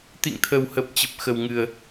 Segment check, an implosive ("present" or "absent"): absent